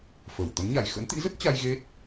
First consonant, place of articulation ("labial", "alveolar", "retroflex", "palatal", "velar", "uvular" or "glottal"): labial